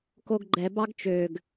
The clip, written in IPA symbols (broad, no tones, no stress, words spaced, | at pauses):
koɡɡ͡ǃɛ bɑɡt͡ʃøɡ